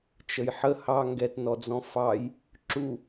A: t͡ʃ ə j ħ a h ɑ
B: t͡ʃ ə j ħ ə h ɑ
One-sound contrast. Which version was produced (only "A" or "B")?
B